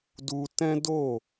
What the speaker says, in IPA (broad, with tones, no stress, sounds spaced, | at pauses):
d u˦ t ɛ̃˦ d o˦˨